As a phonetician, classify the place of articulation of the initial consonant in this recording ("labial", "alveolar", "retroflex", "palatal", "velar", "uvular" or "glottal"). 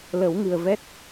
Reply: alveolar